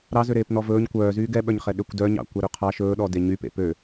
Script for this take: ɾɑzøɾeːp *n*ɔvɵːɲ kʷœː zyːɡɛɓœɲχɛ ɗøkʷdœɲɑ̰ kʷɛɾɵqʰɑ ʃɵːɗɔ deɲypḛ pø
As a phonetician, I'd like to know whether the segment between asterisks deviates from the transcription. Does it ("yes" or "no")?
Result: no